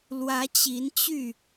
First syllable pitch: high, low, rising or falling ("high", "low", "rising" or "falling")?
rising